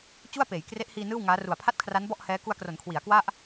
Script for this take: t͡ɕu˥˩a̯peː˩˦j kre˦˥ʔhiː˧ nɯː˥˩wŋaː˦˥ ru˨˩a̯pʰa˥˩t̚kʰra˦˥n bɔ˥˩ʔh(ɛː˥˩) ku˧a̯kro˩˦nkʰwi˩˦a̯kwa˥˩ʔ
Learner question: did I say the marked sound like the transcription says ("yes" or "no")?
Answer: no